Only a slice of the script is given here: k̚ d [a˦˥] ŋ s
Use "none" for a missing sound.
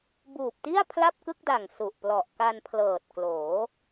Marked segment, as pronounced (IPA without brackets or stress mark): a˨˩